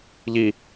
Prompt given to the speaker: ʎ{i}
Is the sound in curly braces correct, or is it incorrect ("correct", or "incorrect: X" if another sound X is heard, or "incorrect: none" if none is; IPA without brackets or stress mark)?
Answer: correct